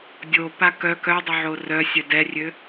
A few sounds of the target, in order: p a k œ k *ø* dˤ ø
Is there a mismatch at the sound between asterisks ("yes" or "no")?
yes